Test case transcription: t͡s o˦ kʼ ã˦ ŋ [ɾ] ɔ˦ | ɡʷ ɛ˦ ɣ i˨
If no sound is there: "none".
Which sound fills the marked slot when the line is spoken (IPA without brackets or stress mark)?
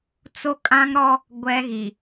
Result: ɾ